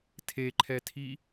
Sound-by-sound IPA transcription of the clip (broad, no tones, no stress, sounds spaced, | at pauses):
tʰ e ǃʰ ɛ tʰ i